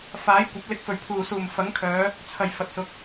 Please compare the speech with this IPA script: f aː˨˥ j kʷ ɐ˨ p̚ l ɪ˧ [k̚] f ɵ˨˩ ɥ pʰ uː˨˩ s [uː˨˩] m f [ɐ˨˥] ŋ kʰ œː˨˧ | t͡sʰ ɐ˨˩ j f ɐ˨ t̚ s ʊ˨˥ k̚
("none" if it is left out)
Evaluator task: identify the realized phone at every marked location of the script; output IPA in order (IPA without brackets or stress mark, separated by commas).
k̚, uː˨˩, ɐ˨˥